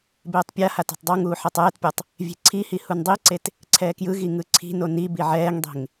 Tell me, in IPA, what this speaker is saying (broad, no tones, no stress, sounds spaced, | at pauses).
b eː tˤ pʲ a h a t ɛ̤ tˤ dˤ ɤ ŋ uː ħ ɛ tˤ ɛː t pʲ ɤ tˤ | vʲ e̤ ǀʰ i h i h u n dˤ i ǀ e t | ǀʰ ɛː k j ɯ ɣ i ŋ ɯ ǀʰ i̤ n o n i b i ʕ ɛː ŋ dˤ e̤ ŋ